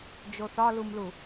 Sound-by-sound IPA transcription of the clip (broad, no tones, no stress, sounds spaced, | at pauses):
d͡ʒ o θ ɒ l u m l u